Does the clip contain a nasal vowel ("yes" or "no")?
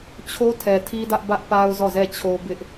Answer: no